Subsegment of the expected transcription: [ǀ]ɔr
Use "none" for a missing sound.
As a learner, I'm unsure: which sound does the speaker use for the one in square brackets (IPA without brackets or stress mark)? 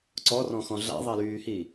ǀ